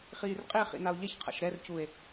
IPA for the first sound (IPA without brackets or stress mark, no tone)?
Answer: χ